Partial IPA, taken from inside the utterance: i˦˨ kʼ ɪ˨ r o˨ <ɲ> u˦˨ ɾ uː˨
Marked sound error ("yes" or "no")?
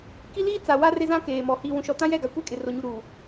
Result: no